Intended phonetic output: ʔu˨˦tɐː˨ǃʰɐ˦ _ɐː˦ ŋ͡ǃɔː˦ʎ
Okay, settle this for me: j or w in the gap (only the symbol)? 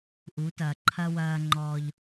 w